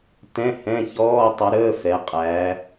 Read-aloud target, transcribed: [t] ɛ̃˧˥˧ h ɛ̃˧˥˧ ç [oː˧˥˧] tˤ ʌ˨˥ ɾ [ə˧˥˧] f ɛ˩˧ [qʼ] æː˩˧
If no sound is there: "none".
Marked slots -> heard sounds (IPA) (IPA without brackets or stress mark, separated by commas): t, ɔː˧˥˧, əː˧˥˧, qʼ